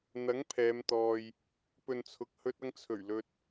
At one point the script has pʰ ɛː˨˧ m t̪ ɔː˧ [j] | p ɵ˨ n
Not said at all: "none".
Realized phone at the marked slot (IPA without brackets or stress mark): j